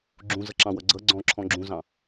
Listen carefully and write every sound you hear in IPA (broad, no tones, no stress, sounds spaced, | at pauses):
ɡ͡ǁ ũ z ʌ ǁ ɑ̃ w ʌ ɡ͡ǀ ʌ ɡ͡ǀ ɔ̃ ǁʰ ɔ̃ ɡ͡ǁ ũ z ɑ̃